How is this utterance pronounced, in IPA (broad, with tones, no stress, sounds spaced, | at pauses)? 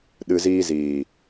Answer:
ɗ ɨ˨ z iː˧ z iː˨